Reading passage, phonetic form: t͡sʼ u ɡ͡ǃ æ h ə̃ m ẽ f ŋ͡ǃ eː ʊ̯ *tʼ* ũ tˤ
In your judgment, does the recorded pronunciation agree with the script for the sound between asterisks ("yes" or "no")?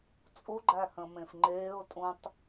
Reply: yes